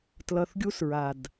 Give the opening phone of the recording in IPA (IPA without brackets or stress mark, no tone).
t